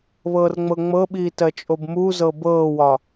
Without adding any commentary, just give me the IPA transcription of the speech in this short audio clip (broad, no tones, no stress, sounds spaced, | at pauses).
β ɤː r ŋ͡m ɤ ŋ͡m ɤ ɓ iː t ɜ t͡ʃʼ o b m u z ɤ b ɤː w ɒ